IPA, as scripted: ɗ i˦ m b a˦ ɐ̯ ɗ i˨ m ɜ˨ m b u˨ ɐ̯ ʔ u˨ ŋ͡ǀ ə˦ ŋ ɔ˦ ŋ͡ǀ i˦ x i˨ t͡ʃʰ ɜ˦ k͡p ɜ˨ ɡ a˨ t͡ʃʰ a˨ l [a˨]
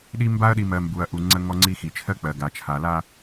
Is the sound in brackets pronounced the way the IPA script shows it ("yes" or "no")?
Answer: no